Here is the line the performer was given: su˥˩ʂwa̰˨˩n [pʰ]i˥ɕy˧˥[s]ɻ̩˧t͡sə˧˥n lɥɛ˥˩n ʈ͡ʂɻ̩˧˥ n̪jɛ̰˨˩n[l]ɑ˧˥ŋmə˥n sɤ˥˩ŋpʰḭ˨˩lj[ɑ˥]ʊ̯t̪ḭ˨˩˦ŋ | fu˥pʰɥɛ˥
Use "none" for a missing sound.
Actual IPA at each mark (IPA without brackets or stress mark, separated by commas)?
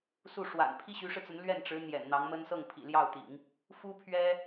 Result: pʰ, ʂ, n̪, ɑ˥˩